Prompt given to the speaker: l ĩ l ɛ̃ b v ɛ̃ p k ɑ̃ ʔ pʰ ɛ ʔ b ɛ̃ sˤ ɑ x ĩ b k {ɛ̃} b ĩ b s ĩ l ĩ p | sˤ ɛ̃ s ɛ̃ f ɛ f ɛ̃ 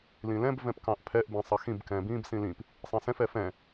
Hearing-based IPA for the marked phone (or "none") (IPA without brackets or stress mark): ɛ̃